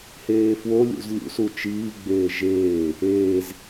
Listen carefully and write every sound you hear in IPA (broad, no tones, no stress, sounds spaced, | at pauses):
h eː f w o lʲ ṵ z lʲ ṵ s u t͡ʃ iː ɡ͡b eː ʒ eː | eː z